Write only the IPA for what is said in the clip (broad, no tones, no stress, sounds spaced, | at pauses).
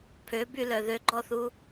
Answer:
pʰ ø b y l œ ð ø ɡ͡ǃ ɔ θ u